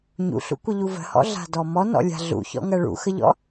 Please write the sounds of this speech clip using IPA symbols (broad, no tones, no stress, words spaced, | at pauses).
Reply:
ɲṵɬṵkʷəʎu və̤hɔ̰ɮa̤dɔ mɔnɔ̰lʲa̤ ɮṵçɔ̰ŋɜ ɭṵxəʎɔ̰